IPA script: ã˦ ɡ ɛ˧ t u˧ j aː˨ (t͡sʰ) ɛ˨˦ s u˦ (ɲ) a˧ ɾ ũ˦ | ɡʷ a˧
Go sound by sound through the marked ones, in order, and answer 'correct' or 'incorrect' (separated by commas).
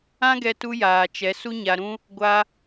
incorrect, correct